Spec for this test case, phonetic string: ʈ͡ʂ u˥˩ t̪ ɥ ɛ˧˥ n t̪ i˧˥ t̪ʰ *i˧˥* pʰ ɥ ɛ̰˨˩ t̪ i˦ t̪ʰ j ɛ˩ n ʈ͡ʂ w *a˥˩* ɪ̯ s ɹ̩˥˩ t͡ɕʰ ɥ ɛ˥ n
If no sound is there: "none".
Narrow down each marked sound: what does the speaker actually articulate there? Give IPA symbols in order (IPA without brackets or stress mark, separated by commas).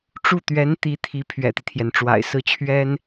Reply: i˧˥, a̰˨˩